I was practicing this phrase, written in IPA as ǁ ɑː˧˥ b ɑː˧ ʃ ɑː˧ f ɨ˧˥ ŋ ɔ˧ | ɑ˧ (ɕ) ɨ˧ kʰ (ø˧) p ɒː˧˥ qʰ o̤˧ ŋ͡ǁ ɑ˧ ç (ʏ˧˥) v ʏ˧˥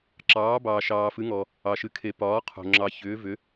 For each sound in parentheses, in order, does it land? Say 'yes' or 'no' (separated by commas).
no, no, no